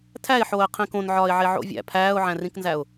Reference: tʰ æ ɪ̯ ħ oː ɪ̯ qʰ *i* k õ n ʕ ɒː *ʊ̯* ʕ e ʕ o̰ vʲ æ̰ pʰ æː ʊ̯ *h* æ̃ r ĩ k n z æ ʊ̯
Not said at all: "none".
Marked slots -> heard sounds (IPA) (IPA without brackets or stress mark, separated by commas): ĩ, ɪ̯, ʕ